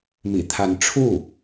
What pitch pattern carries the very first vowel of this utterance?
low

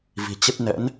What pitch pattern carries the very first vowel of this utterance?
low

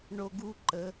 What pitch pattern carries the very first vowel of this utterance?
high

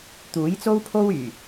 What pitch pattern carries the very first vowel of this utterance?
rising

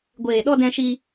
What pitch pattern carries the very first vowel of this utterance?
low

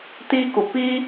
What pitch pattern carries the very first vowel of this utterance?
high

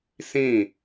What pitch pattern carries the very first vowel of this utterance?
falling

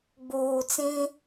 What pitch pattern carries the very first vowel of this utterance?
low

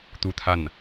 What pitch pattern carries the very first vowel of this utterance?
falling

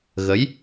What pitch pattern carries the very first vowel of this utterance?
rising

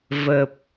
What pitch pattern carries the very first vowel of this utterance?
low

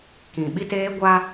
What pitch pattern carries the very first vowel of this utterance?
low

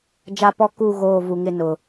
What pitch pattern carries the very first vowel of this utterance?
high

